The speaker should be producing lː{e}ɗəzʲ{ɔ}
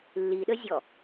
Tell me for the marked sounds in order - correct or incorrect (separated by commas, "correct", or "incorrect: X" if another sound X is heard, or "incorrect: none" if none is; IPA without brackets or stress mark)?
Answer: incorrect: i, correct